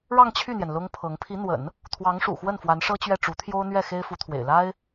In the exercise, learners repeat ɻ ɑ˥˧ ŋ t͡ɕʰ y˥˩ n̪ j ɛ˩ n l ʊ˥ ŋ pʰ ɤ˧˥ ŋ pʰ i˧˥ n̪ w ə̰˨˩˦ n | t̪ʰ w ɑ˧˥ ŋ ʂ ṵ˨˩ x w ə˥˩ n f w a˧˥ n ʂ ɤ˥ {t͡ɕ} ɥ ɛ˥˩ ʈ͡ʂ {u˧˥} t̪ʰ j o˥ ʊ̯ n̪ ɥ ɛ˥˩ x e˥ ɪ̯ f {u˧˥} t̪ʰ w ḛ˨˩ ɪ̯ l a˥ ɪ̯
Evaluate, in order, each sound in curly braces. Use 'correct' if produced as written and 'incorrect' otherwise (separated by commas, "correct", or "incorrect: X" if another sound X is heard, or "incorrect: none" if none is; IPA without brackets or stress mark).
correct, correct, correct